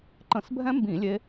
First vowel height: mid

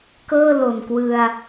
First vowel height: mid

